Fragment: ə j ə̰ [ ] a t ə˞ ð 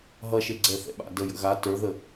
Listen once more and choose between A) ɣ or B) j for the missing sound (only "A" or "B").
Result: A